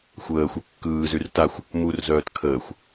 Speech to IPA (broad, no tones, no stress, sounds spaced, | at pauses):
xʷ əː xʷ ə kː ɯː z y r t a xʷ | m u r z œː t kʰ əː xʷ